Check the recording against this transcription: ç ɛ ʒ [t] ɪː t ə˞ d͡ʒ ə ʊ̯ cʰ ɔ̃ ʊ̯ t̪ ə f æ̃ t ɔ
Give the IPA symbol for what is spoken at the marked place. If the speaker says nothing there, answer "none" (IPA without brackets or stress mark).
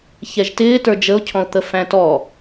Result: t